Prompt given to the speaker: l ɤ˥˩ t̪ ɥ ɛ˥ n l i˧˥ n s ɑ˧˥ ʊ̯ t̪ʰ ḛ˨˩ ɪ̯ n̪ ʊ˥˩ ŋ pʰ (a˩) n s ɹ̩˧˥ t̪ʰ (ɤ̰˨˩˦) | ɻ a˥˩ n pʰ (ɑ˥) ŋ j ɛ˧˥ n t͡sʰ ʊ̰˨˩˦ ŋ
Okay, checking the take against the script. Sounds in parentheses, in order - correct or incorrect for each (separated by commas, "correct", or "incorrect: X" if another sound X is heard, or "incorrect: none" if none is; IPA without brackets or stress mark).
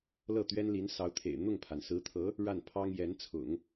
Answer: correct, incorrect: ɤ˧˥, correct